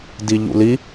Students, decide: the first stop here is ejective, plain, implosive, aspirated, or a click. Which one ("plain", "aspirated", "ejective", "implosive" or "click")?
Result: plain